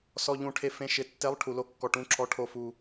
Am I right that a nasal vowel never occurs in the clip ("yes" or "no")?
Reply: no